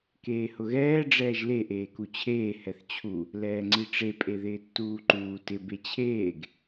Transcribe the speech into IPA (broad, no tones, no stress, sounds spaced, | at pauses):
k eː h ʊ ɣ ɛː ɖ͡ʐ ɛː ʒ l e ʔ eː k u t͡ɕʰ eː h ɛ θ t͡ɕʰ u | l ɛː ŋ͡ǀ i ʈ͡ʂ e pʼ e ð ɪː tː uː ǃ uː t ɪ b e t͡ɕʰ eː ɡ